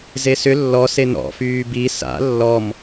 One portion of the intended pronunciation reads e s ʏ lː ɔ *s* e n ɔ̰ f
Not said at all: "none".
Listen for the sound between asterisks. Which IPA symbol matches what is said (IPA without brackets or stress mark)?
s